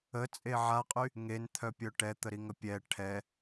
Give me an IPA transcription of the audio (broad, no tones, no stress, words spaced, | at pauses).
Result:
ət͡sʼe ʕaqʼy | ŋent̪ʰœpʲœ ʈɛt̪əɾiŋə pʲɛ ʈʰɛ